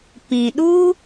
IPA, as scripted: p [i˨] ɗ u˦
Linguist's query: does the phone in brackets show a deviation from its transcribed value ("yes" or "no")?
yes